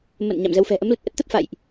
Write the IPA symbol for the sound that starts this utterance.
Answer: m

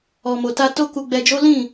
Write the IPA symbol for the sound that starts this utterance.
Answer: ɔ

